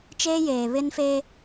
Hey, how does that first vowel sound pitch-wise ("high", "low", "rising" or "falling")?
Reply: high